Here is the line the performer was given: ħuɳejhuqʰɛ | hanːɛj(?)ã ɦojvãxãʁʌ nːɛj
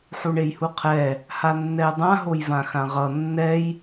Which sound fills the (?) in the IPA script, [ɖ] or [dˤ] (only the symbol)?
dˤ